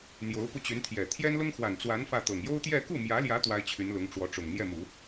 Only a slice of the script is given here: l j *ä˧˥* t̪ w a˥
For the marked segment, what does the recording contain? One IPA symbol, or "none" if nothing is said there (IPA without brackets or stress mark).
ä˧˥